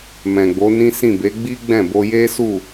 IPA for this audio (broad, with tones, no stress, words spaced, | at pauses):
mɛ̃˨ɡ͡bo˨˦nĩ˦sĩ˦˨ be˨˦ɡ͡bi˦ɡ͡bɛ̃˦˨ bo˧je˦su˦˨